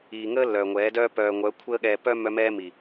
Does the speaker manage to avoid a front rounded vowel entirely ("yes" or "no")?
no